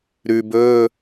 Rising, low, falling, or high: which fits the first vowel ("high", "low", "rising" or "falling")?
low